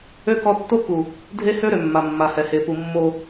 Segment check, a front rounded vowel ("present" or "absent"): present